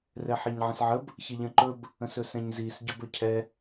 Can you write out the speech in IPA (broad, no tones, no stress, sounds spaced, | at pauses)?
r ɛ ħ i ɲ ʕ ə̃ s ʕ ə b | ç ə ʎ ə̃ ǃ ɵ b | ə̃ s ɵ s ɛ̃ ɲ z i s ɟ ɵ b ɵ cʰ ɛ